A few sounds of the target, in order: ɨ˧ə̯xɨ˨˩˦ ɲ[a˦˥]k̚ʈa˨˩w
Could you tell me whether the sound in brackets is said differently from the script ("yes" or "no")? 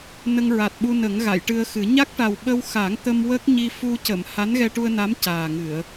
no